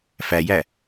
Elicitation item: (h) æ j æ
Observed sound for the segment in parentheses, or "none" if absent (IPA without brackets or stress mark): f